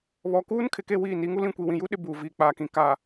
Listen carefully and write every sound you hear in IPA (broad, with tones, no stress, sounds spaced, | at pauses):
β ɔ˨ k uː˦ n kʰ ɪ˨ k e˦˨ w iː˦˨ n i˨˦ ŋ u˦ l ĩ˦˨ kʷ i˨ w ĩ˨ j u˦ ɗ ɪ˦ b uː˨ v iː˨ k͡p aː˨ k ĩ˨ k a˨